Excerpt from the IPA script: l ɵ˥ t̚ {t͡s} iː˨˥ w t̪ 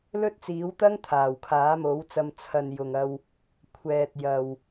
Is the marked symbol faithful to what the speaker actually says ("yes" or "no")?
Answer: yes